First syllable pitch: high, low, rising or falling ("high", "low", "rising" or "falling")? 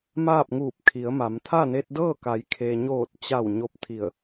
falling